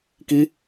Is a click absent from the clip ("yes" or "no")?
yes